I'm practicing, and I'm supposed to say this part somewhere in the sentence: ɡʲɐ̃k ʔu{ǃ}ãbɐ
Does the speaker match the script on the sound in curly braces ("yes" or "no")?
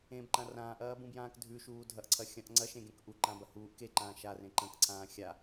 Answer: yes